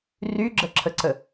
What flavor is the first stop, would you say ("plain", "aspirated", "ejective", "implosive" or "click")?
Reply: click